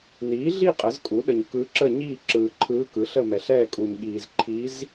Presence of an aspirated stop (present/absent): present